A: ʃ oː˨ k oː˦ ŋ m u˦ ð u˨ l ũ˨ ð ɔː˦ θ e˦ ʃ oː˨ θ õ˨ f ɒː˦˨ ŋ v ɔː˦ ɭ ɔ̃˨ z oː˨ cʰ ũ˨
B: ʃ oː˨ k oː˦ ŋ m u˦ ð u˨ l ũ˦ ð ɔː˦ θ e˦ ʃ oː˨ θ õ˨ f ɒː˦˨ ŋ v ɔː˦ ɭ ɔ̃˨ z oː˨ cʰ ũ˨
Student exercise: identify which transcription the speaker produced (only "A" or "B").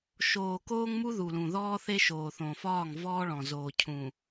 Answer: A